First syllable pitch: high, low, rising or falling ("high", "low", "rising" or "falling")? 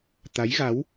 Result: rising